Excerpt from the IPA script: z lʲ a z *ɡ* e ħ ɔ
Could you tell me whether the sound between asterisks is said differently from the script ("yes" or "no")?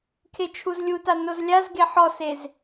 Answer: no